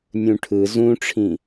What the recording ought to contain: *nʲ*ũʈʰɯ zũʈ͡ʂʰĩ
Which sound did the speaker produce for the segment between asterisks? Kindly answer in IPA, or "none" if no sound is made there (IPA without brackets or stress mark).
nʲ